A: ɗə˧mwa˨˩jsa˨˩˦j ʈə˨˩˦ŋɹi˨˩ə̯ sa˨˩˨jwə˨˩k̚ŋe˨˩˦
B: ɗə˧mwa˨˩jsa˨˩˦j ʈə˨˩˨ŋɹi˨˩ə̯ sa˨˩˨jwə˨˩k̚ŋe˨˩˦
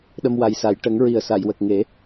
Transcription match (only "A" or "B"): A